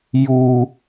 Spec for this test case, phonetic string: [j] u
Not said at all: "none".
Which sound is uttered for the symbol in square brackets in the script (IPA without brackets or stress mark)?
j